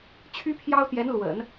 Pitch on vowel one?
high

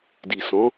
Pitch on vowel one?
low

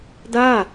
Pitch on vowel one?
falling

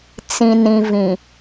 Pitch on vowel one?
low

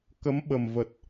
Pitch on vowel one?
rising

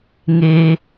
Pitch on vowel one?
low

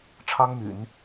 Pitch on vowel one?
high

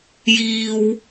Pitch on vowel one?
high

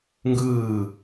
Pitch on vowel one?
falling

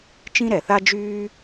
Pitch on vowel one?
high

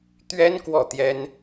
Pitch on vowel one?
high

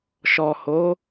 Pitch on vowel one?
low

